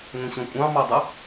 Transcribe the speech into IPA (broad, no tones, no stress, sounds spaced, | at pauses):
ŋʷ ĩ ɕ ɔ̃ kʷʼ ɑ̃ m ɑ dˤ ɪ